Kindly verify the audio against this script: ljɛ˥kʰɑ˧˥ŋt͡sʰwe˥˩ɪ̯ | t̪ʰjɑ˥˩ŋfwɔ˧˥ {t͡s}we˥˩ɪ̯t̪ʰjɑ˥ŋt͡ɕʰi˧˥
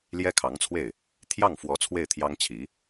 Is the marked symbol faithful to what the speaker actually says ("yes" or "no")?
no